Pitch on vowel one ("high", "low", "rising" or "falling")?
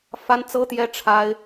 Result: high